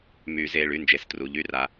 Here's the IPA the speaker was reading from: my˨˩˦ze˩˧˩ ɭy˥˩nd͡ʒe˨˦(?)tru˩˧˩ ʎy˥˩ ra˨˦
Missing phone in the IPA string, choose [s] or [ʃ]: s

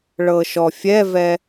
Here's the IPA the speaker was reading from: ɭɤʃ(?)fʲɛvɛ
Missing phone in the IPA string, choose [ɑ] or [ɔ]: ɔ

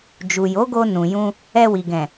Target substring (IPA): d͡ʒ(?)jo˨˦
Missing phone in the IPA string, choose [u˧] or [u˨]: u˨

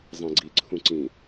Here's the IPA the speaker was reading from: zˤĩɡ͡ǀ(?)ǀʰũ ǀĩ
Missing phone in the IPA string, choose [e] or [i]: i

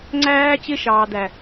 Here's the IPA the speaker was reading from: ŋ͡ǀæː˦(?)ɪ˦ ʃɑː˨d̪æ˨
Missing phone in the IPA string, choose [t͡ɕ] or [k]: t͡ɕ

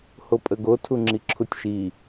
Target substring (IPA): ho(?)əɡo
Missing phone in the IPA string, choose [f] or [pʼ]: pʼ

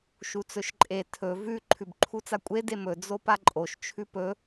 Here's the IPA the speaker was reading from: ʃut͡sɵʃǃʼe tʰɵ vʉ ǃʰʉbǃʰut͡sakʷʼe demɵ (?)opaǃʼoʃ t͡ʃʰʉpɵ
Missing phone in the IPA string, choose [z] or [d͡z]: d͡z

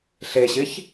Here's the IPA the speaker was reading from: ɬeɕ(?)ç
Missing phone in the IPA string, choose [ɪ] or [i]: ɪ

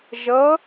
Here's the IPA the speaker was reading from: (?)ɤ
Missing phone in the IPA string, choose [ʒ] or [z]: ʒ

